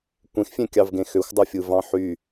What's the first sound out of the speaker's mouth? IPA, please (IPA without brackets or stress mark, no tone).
kʷ